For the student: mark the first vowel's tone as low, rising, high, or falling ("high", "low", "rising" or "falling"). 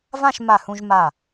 falling